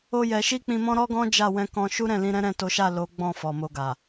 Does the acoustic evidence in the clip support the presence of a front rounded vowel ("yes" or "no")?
no